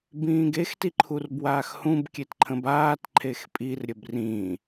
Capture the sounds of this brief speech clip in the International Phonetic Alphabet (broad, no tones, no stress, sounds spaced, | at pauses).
b ĩː ɡ e x t i ǃʰ u r b w aː x h ũ b kʲ e t ǃʰ ə̃ b aː t ǃʰ e x pʼ i r ɾʲ ə b r ĩː